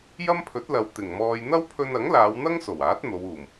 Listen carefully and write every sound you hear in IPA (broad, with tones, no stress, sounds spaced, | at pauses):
j ɐ˥ m pʰ ɵ˨˥ t̚ l ɐ˨ w t̪ ɪ˨˩ ŋ m ɔː˧ j n̪ ɐ˥ w pʰ ɵ˧ n ɐ˨˥ ŋ l aː˨˧ w n̪ ɐ˥ ŋ s o˨˩ w aː˨˥ t̚ n̪ o˨˧ w uː˨˩ m